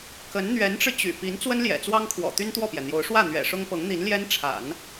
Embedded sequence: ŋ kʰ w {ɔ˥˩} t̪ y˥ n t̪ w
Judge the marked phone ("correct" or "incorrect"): incorrect